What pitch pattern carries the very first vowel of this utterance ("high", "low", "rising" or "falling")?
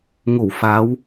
low